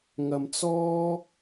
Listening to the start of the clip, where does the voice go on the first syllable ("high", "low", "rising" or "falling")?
low